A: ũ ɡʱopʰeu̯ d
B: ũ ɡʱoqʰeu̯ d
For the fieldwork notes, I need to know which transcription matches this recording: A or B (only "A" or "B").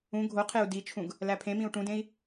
B